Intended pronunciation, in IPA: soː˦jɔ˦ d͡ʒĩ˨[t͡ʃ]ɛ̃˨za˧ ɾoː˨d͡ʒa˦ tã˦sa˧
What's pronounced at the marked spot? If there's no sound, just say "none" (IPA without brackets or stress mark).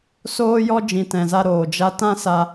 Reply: t